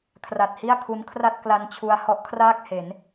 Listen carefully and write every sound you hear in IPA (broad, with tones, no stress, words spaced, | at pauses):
kʰra˨˩t̚hi˥˩a̯kʰu˦˥nkʰra˥˩t̚ kla˧nt͡ɕʰu˧a̯ hɔ˦˥ʔkʰraː˥˩k̚he˩˦n